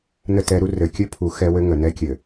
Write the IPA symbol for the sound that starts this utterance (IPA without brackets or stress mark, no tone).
n